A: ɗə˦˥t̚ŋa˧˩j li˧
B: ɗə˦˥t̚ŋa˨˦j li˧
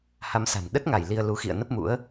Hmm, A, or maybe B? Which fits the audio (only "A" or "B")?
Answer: A